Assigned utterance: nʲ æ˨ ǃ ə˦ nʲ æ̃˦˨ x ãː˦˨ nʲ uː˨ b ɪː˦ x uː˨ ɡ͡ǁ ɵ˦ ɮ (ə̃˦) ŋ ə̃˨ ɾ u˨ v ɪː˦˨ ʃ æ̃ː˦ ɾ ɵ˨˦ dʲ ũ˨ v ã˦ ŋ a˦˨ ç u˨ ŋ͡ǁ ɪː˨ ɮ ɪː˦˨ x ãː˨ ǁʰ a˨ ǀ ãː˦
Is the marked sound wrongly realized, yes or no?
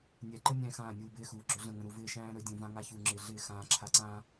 yes